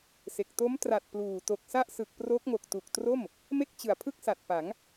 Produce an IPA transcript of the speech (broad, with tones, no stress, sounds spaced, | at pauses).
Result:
s e˨˩ k̚ t o˦˥ m t r a˨˩ t̚ p l uː˨˩ t o˨˩ k̚ s a˥˩ ʔ s ɯ˨˩ k̚ p r o˦˥ k̚ ŋ o˨˩ k̚ t u˨˩ k̚ t r o˥˩ m | m e˥˩ k̚ t͡ɕ ɯ˨˩ a̯ pʰ ɯ˥˩ k̚ s a˨˩ t̚ p a˩˦ ŋ